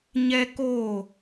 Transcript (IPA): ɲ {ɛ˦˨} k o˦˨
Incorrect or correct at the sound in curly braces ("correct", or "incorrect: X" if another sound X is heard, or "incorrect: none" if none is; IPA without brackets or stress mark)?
incorrect: ɛ˦